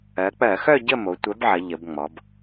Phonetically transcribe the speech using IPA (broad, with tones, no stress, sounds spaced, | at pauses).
ɜ˩˧ k͡p ɜ˧˩˧ x œ˥˧ ɟ ə˥˧ m o˩˧ tʷ œ˨˥ b ʕ ɐ˩˧ ʎ ə˩˧ b ŋ͡m ɔ˩˧ b